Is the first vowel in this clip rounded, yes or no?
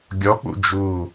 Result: yes